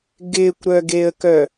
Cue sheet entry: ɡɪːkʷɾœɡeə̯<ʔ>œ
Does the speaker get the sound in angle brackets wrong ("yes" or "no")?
yes